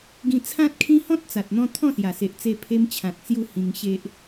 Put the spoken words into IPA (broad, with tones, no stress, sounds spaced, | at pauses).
ɡ ĩ˧ t͡sʰ ã˦ t̚ kʰ ĩ˦ h ɔ̃˦ t̚ t͡s a˨ t̚ n̪ ɔ̃˧ t̪ʰ ɔ̃˥˧ s j a˨˩ s e˨ ʔ t͡s e˧ pʰ e˧ m t͡ɕʰ ã˨ t̚ t͡s j u˧ h ĩ˧ ŋ ɕ e˦ ʔ